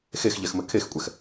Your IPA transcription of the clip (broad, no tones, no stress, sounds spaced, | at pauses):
x e x ʎ ɛ x m ɘ kʰ e x kʷʼ ɛ x